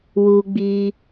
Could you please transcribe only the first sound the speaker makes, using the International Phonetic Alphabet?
w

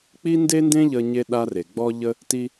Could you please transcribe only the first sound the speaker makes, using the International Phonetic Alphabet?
k͡p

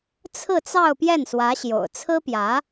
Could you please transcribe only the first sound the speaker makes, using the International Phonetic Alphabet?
t͡sʰ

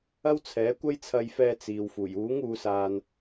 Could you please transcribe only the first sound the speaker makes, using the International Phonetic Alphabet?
ɐ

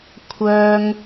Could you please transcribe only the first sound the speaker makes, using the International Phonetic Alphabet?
kʷʰ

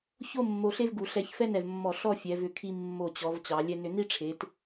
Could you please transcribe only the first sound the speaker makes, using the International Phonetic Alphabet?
ç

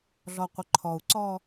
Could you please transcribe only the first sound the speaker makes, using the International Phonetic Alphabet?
ɮ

